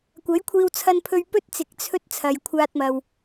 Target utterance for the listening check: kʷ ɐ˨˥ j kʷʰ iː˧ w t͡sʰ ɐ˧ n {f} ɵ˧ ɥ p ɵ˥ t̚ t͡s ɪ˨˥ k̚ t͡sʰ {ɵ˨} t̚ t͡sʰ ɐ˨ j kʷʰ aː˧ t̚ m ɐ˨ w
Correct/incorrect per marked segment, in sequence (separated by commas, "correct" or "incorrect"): incorrect, incorrect